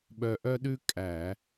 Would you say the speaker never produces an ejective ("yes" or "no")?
no